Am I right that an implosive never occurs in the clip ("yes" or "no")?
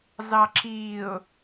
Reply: yes